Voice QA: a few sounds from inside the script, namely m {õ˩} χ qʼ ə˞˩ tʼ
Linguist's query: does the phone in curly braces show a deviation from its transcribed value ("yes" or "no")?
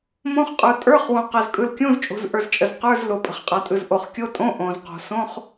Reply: yes